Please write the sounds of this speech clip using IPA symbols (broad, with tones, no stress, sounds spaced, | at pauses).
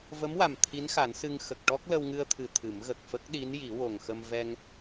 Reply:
v ə˧˥ m w a˨˩ m t̪ʰ i˧˥ n x a˨˩˦ n s ɨ˧ ŋ x ə˨˩ k̚ ʈ ɔ˦˥ k̚ l ə˧ w ŋ ɨ˧ ə̯ t̪ʰ ɨ˨˩˨ t̪ʰ ɨ˨˩˦ m ɣ ə˨˩ k̚ f ə˦˥ k̚ ɗ i˧˥ n j i˨˩˦ w o˨˩ ŋ x ə˧ m v ɛ˧ ŋ